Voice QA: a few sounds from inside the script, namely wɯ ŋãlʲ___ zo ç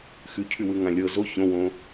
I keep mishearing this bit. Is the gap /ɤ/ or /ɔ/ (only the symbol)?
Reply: ɤ